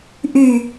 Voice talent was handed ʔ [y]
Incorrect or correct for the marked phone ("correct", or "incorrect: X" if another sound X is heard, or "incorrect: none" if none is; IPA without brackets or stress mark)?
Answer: correct